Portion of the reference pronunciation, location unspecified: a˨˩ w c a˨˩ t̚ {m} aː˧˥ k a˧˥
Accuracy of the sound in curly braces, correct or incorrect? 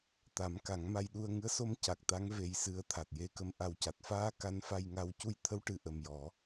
incorrect: f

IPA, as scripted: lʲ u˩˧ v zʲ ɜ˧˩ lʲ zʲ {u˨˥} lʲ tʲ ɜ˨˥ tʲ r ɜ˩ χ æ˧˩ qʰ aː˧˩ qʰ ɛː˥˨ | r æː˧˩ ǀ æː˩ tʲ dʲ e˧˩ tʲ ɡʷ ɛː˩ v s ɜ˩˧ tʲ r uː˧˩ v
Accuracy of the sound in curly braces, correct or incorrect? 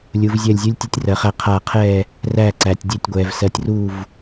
correct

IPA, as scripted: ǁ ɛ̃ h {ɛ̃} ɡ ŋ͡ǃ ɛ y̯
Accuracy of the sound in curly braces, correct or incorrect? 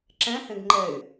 incorrect: ẽ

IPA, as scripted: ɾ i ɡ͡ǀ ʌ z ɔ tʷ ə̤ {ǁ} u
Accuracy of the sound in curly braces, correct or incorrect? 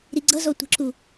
correct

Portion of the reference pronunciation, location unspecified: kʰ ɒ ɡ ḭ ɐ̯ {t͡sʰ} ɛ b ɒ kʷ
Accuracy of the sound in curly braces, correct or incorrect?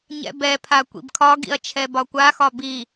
incorrect: t͡ʃʰ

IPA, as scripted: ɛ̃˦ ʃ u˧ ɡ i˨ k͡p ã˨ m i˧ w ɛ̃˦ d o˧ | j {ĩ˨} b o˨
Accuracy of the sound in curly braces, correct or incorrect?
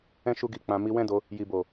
incorrect: i˨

